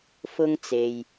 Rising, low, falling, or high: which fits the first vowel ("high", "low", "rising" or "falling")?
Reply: high